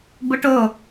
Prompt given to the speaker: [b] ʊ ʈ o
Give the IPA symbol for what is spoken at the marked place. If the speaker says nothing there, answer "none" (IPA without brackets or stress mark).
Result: b